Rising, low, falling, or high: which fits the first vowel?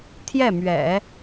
falling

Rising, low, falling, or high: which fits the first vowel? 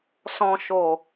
low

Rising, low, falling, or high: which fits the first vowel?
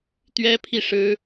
high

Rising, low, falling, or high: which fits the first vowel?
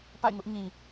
falling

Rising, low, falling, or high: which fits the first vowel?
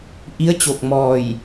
rising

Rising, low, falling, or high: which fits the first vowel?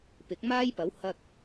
rising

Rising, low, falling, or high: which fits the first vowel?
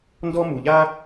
high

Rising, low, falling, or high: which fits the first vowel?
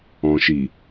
low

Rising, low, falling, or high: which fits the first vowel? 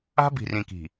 high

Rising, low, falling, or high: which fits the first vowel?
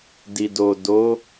low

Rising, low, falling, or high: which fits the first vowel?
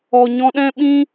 low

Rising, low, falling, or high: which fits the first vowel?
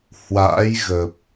rising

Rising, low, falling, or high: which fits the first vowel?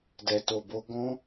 low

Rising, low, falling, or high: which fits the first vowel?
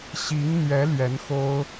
rising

